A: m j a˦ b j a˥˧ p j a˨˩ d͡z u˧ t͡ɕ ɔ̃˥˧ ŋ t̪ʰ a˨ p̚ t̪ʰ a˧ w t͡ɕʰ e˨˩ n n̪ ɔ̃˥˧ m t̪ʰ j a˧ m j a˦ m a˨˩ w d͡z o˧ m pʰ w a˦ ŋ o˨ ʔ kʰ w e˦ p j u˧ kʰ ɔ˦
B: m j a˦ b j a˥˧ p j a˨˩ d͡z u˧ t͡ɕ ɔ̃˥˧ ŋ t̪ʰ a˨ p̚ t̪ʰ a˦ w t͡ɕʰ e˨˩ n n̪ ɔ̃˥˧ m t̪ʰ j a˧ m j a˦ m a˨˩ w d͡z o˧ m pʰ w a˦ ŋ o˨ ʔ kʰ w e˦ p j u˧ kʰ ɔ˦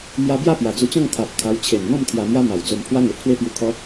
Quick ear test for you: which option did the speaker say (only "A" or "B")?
A